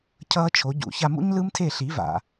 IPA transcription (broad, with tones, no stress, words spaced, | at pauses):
cʰʌː˥t͡ʃʰo˩˥ɟṵ˩˥ ça˧mṵ˥ɲlɯ˥mtʰe˥˩ ɬi˩˥va̰˩